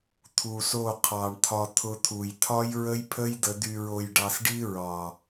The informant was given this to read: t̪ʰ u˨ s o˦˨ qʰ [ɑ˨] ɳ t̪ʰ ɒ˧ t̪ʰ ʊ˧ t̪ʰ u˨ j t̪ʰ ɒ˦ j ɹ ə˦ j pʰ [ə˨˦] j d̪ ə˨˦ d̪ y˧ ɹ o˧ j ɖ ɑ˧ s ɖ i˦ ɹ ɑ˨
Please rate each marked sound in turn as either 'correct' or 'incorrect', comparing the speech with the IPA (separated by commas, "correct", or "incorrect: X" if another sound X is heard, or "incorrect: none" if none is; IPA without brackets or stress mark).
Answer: correct, incorrect: ə˦